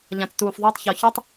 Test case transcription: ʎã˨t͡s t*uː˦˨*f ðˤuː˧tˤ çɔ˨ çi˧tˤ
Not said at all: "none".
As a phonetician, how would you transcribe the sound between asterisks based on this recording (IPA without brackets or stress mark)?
uː˨